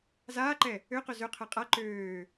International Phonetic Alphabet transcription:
z aː ǃ ɛ | ø q ø z ø qʰ ɛ qʼ a ǃ øː

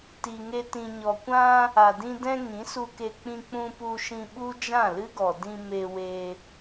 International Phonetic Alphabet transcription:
t i˨ ŋ e˧ t ĩ˨ ɲ ɔ˨ kʷ ã˧ | a˨ d ĩ˧ d ɛ̃˧ ŋ ĩ˨˦ s u˧ k e˧ k͡p ĩ˧ k͡p ũ˧ p u˧ ʃ ĩ˧ ɓ u˦ d͡ʒ ã˦˨ l ɨ˦ ɡ ɔ˨ d ĩ˧ m e˧ w e˧

